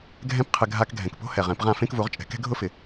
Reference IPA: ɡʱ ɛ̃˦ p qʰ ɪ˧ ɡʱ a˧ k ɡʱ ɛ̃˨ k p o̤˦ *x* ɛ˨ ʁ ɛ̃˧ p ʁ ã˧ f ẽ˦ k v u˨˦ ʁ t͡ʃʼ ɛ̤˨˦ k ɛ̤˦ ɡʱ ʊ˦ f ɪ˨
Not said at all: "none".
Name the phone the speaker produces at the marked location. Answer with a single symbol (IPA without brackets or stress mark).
h